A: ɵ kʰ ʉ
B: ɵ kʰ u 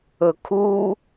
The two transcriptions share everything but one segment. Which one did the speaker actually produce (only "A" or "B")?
B